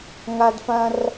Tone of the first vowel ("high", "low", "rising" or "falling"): high